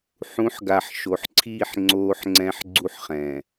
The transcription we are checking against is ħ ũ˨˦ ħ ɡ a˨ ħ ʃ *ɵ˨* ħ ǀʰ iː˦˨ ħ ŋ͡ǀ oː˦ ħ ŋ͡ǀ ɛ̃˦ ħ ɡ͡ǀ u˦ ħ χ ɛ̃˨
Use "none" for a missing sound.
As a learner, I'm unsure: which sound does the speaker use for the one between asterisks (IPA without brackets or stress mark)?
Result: o˨